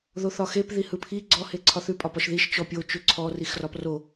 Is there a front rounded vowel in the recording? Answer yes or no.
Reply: no